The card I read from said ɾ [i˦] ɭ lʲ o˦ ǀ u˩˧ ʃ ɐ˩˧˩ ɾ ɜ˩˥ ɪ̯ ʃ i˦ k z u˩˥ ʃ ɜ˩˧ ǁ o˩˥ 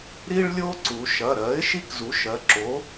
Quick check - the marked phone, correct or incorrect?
correct